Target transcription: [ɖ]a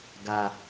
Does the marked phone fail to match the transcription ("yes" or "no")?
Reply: yes